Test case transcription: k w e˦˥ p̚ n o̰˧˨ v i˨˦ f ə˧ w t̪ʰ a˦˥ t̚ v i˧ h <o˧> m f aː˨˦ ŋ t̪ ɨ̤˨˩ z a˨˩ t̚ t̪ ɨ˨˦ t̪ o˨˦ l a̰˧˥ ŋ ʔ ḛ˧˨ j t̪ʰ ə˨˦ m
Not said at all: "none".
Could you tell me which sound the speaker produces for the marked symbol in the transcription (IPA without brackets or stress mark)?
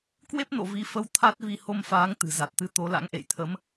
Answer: o˧